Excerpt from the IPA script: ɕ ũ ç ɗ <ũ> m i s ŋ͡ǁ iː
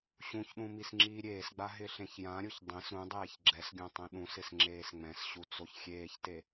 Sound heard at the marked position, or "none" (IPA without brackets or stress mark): ũ